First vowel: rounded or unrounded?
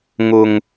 rounded